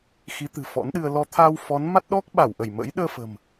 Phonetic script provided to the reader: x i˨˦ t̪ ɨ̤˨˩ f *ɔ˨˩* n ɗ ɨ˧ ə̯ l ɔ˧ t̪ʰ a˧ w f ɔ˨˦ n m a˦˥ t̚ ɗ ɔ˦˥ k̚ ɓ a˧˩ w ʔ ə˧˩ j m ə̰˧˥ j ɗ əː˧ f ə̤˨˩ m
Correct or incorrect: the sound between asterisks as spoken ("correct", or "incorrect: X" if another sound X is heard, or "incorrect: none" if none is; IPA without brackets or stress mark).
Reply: incorrect: ɔ̰˧˥